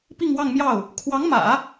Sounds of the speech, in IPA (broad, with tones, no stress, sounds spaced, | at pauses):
p i˥˧ ŋ w ɑ˥˧ ŋ m j ɑ˥˩ ʊ̯ | kʰ w ɑ˧˥ ŋ m ä̰˨˩˦